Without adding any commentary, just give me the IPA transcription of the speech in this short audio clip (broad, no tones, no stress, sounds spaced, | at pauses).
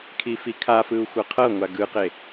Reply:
kʰ i f i kʰ a f ɯ u̯ xʷ ɤ qʰ ɤ ŋʷ a ɡ ɯ q e